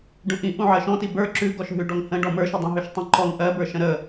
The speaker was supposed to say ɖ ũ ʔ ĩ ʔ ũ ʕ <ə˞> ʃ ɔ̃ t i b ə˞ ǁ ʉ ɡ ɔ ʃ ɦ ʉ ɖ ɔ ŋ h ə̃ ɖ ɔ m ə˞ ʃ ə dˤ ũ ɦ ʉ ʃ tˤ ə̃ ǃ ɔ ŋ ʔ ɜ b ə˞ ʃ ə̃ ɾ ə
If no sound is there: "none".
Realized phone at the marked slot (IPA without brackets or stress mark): ɜ